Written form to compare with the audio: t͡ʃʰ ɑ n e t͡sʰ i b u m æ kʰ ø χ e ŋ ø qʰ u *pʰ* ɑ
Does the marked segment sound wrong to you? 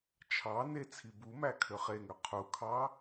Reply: yes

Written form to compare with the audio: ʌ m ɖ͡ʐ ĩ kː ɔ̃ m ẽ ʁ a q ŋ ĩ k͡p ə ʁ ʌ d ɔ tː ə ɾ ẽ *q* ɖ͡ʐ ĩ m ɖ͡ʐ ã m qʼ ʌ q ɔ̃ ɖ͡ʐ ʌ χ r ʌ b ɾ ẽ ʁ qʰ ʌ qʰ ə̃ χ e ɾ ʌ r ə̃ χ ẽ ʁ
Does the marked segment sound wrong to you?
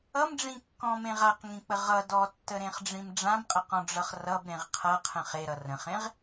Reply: yes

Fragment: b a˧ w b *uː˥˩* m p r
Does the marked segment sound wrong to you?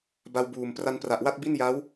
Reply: yes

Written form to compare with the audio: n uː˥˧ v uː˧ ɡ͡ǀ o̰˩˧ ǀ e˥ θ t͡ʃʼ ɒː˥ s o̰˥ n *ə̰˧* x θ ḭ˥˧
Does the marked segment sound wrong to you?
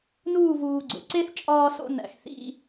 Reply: yes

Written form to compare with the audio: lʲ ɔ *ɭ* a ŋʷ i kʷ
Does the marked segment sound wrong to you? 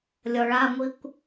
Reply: no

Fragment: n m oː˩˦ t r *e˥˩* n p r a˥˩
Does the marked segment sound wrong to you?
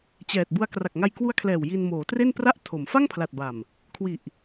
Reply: no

